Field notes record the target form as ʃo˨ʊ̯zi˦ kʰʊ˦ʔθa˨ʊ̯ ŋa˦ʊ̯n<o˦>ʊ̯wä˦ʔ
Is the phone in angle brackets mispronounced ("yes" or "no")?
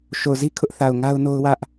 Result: no